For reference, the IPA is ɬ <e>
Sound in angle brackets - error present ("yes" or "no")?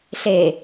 no